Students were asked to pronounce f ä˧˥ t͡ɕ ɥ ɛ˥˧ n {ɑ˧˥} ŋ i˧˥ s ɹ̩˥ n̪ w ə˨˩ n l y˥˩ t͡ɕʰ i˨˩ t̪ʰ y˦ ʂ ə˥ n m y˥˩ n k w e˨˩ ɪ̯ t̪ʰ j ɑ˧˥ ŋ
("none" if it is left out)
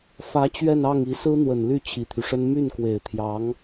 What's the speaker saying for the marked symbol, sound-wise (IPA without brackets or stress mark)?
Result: ɑ˥˩